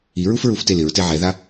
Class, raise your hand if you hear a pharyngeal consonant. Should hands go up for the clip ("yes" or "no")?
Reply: yes